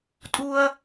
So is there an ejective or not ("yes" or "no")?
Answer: yes